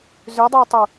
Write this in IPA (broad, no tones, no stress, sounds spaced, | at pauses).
z ʏ dˤ ɛ tˤ ʊ